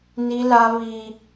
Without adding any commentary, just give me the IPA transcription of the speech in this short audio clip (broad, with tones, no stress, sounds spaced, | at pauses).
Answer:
n i˦ l a˦ β i˦